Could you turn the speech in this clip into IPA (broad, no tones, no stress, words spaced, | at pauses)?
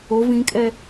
o vĩkʼɛ